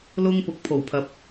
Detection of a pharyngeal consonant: absent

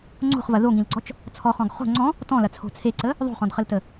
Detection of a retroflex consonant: absent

